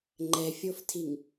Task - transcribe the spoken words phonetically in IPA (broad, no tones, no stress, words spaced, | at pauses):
ŋ͡ǃɛfʲoftʰiŋ